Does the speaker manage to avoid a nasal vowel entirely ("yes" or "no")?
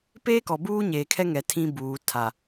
no